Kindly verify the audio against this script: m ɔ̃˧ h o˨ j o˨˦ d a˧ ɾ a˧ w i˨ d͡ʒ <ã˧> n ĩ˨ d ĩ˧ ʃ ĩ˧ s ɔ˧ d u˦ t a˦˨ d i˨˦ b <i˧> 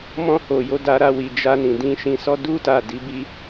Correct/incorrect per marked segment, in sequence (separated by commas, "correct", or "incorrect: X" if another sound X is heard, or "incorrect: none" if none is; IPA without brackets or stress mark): incorrect: a˧, incorrect: i˦